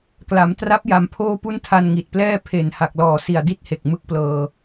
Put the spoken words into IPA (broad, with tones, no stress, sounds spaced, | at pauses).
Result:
k l a˩˦ m t r a˦˥ p̚ j a˨˩ m pʰ oː˥˩ p u˥˩ n tʰ a˧ n ŋ i˨˩ t̚ p l ɛː˥˩ pʰ e˨˩ n h a˨˩ k̚ l ɔː˨˩ s i˨˩ a̯ d i˥˩ t̚ h e˨˩ k̚ m ɯ˦˥ k̚ p l ɤː˧